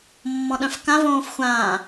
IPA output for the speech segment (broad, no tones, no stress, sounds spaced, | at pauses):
mː ɔ̃ ɗ œ̃ f k ã v õː f xʷ ãː